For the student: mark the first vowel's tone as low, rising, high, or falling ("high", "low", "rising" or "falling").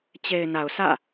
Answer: low